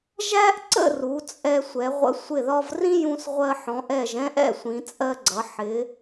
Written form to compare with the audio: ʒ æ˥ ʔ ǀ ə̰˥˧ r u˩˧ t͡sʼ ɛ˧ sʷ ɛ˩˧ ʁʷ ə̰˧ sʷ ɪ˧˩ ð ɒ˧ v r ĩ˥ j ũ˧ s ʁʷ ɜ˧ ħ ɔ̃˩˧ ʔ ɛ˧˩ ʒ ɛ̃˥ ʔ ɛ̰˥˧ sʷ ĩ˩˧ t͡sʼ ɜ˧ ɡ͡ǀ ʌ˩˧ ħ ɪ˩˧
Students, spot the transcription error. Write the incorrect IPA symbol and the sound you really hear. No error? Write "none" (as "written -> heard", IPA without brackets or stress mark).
none